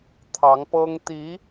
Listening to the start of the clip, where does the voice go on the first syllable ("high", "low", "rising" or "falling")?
rising